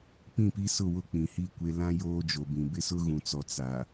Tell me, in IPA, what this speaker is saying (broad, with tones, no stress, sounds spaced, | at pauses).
p ĩ˦˨ p i˦ s ʊ˦˨ w ʊ˦ k͡p ĩ˨ h i˦˨ kʷ e˦ l ã˦ j oː˦ d͡ʒ o˨ b ĩ˨ b ɪ˦ s ʊ˦ ɣ ũ˨ t͡s ɔ˨ t͡s a˨